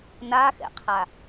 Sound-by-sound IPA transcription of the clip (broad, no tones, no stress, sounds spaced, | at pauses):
n a x ɛ̰ qʰ a